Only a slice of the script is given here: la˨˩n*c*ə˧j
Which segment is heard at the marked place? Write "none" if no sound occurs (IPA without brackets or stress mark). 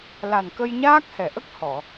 k